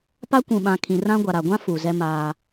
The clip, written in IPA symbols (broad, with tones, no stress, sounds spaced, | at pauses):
p a˦ kʷ ũ˨ ɓ ã˨ kʰ ĩ˨ r ã˦ ɡʷ a˨ ɾ a˨ ɡʷ ã˦ f u˨ z ɛ˦ m aː˦